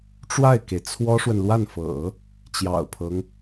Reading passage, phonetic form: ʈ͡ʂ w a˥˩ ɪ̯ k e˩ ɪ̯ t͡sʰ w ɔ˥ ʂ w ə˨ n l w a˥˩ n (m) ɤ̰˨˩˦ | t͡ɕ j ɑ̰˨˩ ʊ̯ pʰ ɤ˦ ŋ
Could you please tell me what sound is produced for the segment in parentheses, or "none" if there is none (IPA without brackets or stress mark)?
f